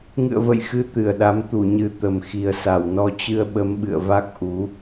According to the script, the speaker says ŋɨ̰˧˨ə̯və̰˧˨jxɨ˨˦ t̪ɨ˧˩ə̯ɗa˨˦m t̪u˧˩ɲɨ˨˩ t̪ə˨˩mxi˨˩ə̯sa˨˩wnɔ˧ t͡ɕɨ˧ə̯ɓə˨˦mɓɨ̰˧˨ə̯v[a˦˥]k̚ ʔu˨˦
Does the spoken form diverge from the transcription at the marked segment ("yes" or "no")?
no